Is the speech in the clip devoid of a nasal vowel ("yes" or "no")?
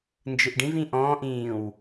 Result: no